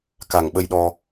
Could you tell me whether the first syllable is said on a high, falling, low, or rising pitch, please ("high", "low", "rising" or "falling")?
low